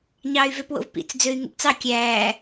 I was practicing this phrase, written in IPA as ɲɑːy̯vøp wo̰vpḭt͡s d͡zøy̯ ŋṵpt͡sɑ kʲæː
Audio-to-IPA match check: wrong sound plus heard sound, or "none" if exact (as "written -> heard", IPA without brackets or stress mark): none